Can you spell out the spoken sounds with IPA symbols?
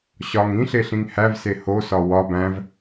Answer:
ɕ ɒ ŋ ĩ ɬ e ɬ ĩ ŋ h æ v s e h o s ɒ w ɒ b æ̃ v

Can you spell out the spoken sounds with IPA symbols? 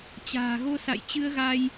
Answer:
t͡ɕ a̤ː˨˩ ɣ o˧ s a̰˧˨ j t͡ɕ ɨ˧ ə̯ ɣ a˧ j

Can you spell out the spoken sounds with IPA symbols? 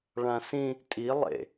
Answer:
ɭ ã s ĩ | tʼ i lˠ ḛ

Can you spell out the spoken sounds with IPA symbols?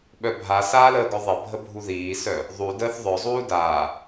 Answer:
ɓ œ bʱ a s aː l əː ɡ œ ðˤ ɪ bʱ ə bʱ u ð iː s œ | ðˤ u d əː θ ðˤ œ zˤ uː d aː

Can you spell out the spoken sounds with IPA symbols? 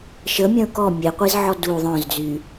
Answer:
ʃ ə mʲ œ̃ ʊ̯ k ɔ mʲ e qʷ i z ʕ ɔ d u ðˤ œ̃ z d͡z y

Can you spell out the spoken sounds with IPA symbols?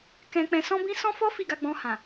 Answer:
k ɛ̃˧ k͡p ɛ̃˧ s ɔ̃˦ b ĩ˦ s ɔ̃˦ f ɔ˦ f i˦˨ ɡ a˧ ɡ͡b ɔ̃˧ h ã˨

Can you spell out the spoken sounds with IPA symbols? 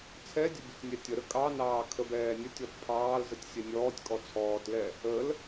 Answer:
t͡sʰ ɛ dʲ ə bʲ ə tʲ nʲ ɛ tʲ ə ɾ ə kʼ ɑ n ɑː kʰ ə b ɛː nʲ ə tʲ ɔ t pʰ ɑː l z ə tʲ sʲ ɛ nʲ ɔː tʲ kʼ ɔ t͡sʰ ɔː t l ɛ | ə l

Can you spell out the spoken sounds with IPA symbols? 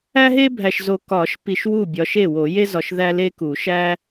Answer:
æ˦ ɦ e˦ bʱ æ˨ ʃ z o˨ k ɒ˨˩˦ ʃ p i˨ ʃ w u˥˩ bʲ ɒ˨˦ ʃ e˥˩ w o˨˩˦ j e˦ z ɒ˨ ʃ ð æ˦ l e˦ k u˨˩˦ ʃ æ˦

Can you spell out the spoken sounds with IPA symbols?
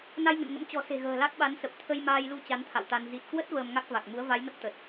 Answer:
n a˧ j ŋ ə̰˧˨ n ŋ ə̰˧˥ m t͡ɕ ɔ̤˨˩ s e̤˨˩ ɣ ə̤ː˨˩ l a˦˥ k̚ ɓ a˨˦ n s ə˨˩ p̚ t̪ʰ ə˧ j m aː˧ j l u˧ t͡ɕ a˨˦ n t̪ʰ a̰˧˨ w t̪ a˧ n z i˨˩ t̚ k w ə˦˥ t̚ v əː˧ m ŋ a˦˥ k̚ v a˨˩ k̚ m u˨˦ ə̯ v a˨˦ j n ə˦˥ p̚ t̪ ə˨˩ t̚

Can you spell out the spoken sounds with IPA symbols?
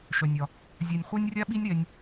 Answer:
ʃ œ˩ nʲ ɒ˩ | zʲ a˩ nʲ χʷ a˧ nʲ rʲ a˧ ɓ i˧ nʲ ɾ ɛ˧ nʲ

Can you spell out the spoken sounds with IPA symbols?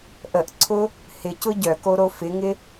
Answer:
ʔ ə ʔ ǀʰ ʊ | h ɪ c ʊ ɟ œ k o ɾ o f ɪ ŋ ɪ

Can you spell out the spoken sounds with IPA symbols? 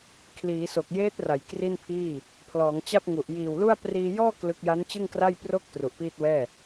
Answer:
kʰ l iː˩˦ s o˨˩ k̚ j eː˦˥ t̚ r a˩˦ j k r i˥˩ n pʰ iː˥˩ | pʰ l ɔː˩˦ ŋ t͡ɕ a˥˩ p̚ ŋ u˨˩ ʔ j iː˨˩ w l u˥˩ a̯ p r iː˧ j ɔː˥˩ k l ɯ˦˥ k̚ j a˦˥ n t͡ɕ ɯ˥˩ ŋ k r a˥˩ j p r o˥˩ k̚ t r u˨˩ ʔ p iː˥˩ t̚ w ɛː˥˩

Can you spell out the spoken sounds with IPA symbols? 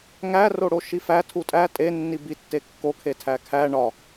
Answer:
ŋ æ r o ɽ o ʃ i f æ tʰ u tʼ æ tʼ e nː i b i tː e kː o kʰ e tʰ æ kʰ æ ɳ ɒ

